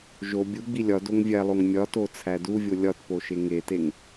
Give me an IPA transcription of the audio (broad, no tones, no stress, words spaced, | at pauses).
ʒo bʲu ɡ͡bilʲɒ doŋvʲælˠoŋ mʲɒto t͡sʰæduvʲo lʲɒtpoʃe ŋeteŋ